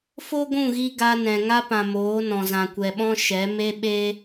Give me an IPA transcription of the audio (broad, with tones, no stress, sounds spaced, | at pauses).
f o˦ ɡʷ ũ˦˨ ɣ i˧ ɡ a˧ n ɛ̃˨ ŋ a˧ p ã˨ m oː˨˦ n ɔ̃˨ z ã˨ kʷ ɛ˨ ɓ ɔ̃˧ ʃ ɛ˨˦ m e˧ ɓ e˧